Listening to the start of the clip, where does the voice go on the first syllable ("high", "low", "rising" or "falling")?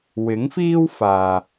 rising